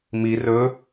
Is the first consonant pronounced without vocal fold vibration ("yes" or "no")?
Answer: no